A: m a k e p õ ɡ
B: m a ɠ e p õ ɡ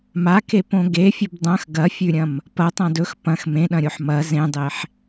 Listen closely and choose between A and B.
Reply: A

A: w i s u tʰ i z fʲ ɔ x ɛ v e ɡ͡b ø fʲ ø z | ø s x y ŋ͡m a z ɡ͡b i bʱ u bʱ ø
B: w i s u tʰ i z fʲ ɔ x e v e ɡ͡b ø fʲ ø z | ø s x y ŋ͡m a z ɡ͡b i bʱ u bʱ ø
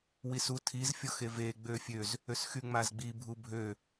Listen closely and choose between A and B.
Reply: B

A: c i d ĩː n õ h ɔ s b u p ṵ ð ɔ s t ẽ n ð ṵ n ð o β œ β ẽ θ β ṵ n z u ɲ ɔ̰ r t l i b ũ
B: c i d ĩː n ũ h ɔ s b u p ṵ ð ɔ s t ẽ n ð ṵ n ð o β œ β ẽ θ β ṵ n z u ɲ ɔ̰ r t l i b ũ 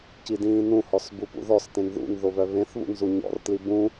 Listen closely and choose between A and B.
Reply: B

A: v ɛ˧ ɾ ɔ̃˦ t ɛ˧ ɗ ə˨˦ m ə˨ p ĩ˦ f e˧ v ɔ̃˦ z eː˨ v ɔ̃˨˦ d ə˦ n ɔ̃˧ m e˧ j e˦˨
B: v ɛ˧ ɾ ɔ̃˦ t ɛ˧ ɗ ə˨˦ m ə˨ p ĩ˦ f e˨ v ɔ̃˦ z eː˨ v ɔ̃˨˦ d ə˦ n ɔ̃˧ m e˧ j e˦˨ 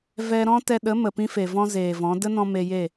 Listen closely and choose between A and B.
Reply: B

